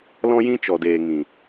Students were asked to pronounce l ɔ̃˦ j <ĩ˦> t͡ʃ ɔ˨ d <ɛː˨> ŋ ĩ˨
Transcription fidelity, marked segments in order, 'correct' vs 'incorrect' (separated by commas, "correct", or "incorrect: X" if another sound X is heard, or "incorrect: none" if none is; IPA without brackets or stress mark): correct, incorrect: eː˨